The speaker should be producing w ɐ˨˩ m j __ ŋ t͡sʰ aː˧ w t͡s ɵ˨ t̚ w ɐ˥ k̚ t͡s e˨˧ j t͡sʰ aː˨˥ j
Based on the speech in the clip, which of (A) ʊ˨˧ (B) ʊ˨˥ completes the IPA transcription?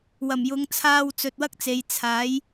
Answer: A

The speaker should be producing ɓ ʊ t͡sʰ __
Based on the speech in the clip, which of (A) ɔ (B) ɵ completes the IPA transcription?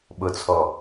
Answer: A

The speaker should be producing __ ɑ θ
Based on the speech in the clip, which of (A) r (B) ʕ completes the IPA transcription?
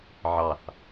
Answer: B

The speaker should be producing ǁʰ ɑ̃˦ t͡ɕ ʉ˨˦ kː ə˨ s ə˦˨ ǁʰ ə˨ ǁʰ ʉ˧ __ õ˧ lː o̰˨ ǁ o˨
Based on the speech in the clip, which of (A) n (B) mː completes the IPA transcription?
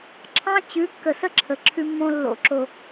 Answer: B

